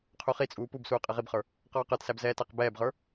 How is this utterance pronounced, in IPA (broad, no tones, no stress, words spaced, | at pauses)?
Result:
qʰuχit͡sʼuː pubsuː qʼɛʁibχə˞ | qɔːqə˞tsæb zɛːtæqbɛːbʁə˞